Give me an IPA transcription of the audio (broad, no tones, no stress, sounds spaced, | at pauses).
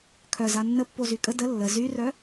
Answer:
kʰ œ z a nː ə pː o z y kʼ ə d ə lː ə z y r œ